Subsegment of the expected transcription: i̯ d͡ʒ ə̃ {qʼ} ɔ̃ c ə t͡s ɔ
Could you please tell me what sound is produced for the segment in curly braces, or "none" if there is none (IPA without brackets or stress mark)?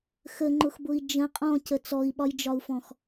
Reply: qʼ